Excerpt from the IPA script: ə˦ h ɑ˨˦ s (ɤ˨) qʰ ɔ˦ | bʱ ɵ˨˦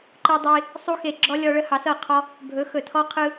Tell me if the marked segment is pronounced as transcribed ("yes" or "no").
no